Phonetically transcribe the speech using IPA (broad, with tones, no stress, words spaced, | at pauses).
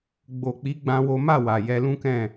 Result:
ɡ͡bo˨k͡pi˨˦ ɡ͡bã˦wo˦ ma˦˨wa˨ jɛ˧lũ˦kɛ̃˦˨